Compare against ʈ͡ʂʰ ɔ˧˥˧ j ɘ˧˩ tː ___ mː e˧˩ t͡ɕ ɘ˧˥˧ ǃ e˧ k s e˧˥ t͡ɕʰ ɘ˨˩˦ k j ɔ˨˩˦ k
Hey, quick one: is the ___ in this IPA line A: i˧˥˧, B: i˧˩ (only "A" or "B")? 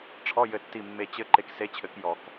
B